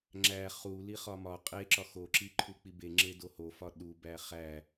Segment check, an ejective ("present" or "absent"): present